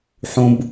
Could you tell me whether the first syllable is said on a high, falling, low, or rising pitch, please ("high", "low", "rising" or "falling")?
high